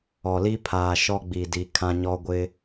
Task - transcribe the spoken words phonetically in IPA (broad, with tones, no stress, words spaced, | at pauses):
ɔ˨li˦pʰaː˨ ʃɔ˦ɡ͡bi˨ di˨ kʰã˦ɲɔ˦ ɡʷɪ˦